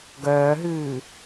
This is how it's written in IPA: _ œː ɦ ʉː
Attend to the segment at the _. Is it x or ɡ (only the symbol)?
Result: ɡ